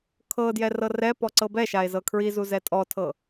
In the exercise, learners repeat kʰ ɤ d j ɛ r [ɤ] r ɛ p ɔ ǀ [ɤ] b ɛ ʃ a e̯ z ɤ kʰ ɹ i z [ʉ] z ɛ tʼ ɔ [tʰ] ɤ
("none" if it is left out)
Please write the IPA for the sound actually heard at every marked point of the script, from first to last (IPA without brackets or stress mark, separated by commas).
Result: ɤ, ɤ, u, tʰ